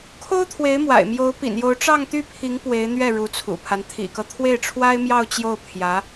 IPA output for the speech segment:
kʰ o˥ ʊ̯ t̪ʰ w e˧˥ ɪ̯ m w a̰˨˩ ɪ̯ m j o˧˥ ʊ̯ p ḭ˨˩ n j o˧˥ ʊ̯ ʈ͡ʂ ɑ˥˧ ŋ t̪ y˥˩ pʰ i˧˥ ŋ p w e˧˥ ɪ̯ n̪ ɥ ɛ˥˩ ɻ u˧˥ t͡sʰ ṵ˨˩ pʰ a˦ n t̪ʰ ḭ˨˩ k ɤ˦ t̪ʰ w e˥˩ ɪ̯ ʈ͡ʂʰ w a˥ ɪ̯ m j ɑ˥˧ ʊ̯ t͡ɕ j o˥˩ ʊ̯ pʰ j ä˧˥

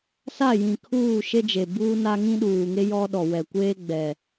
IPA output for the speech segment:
s a˦˨ j ĩ˨ kʰ uː˦˨ ʃ e˦ d͡ʒ e˨ b uː˦ n a˦ ŋ ĩ˦ ɗ uː˨ ŋ e˦ j ɔ˦ ɗ ɔ˨ w ɛ˨ kʷ eː˦ ɡ͡b ɛ˨

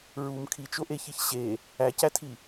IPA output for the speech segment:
ɹ u m kʰ i t͡ʃ o ʔ e ç i ç ɕ e | æ c æ tʰ i

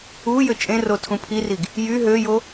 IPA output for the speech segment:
u j ø t͡ʃʼ ẽ r o tʰ ũ pʰ i r i ɡ | j y ɦ ø j o

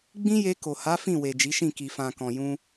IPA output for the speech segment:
ɡ͡b ĩ˦ j e˧ k o˨ h a˨˦ f ĩ˦˨ w e˨ d͡ʒ i˨˦ ʃ ĩ˦˨ k i˨ f ã˨ k ɔ̃˨ j ũ˧

